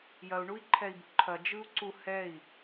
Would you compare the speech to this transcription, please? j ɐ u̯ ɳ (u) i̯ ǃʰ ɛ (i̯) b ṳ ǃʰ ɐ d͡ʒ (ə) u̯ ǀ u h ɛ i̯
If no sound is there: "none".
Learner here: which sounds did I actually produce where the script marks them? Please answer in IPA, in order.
u, i̯, ɯ

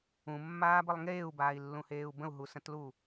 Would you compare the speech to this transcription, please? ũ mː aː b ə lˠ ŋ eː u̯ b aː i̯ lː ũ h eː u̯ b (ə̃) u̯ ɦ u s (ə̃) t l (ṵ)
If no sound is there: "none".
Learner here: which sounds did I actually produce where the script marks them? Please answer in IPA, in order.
ə̃, ə̃, u

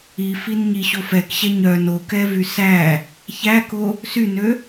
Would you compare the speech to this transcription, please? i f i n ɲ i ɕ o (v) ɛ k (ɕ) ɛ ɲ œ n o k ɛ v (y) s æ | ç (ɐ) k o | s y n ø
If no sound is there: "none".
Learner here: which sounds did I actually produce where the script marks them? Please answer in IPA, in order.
f, ɕ, y, æ

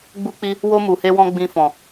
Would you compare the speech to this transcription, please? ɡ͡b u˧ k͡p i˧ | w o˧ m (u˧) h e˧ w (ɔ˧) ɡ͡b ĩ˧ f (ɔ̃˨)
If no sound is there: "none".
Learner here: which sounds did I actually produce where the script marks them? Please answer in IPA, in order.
u˨, ɔ̃˧, ɔ̃˨

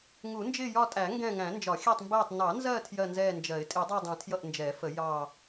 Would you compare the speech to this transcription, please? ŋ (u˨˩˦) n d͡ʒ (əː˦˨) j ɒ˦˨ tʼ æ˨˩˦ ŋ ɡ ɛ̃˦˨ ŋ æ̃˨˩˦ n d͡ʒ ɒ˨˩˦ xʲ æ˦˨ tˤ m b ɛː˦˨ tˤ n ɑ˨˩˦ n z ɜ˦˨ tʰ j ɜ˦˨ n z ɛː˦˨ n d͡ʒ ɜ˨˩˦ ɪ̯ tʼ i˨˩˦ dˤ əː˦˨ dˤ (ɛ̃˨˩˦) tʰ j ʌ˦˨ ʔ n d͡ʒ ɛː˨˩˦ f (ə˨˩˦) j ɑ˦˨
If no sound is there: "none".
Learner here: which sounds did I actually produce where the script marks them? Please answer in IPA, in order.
u˨˩˦, ɪː˦˨, ɛ̃˨˩˦, ə˨˩˦

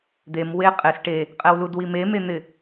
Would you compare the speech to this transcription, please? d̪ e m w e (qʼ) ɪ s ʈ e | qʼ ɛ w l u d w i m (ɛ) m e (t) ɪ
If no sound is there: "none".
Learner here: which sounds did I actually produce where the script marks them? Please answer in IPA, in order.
qʼ, e, n̪

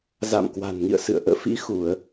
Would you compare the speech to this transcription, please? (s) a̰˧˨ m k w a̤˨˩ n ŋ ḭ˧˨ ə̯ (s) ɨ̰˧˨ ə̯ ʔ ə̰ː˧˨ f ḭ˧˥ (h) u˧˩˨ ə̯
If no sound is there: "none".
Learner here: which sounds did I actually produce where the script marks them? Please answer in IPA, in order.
z, s, x

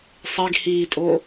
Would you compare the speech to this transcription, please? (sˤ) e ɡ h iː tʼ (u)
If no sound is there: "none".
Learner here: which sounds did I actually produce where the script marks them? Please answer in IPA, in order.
sˤ, o

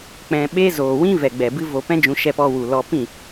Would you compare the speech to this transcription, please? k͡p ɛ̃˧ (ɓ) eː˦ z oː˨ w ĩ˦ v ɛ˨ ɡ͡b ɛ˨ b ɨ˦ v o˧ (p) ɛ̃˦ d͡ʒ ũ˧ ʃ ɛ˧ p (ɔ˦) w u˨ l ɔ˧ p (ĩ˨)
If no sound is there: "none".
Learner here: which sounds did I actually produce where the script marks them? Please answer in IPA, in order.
ɓ, p, ɔ˧, ĩ˦˨

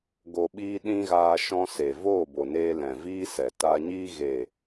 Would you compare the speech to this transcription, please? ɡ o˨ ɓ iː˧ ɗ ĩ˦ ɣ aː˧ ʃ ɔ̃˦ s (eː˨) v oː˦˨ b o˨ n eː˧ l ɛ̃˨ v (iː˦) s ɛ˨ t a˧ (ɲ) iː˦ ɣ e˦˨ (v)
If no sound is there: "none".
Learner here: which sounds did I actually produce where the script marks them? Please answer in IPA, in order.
e˨, iː˦, ɲ, none

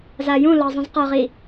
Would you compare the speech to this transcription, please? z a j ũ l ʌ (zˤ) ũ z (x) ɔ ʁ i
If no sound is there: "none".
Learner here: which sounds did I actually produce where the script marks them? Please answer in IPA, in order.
zˤ, q

